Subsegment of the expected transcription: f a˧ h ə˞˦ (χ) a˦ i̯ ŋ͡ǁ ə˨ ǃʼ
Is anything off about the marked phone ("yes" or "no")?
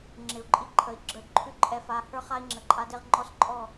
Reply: no